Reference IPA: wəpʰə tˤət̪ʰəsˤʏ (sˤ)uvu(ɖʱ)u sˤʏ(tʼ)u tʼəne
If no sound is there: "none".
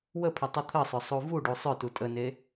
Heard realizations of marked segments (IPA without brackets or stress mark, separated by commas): sˤ, ɖ, t